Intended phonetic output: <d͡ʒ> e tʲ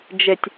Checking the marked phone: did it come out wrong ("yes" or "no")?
no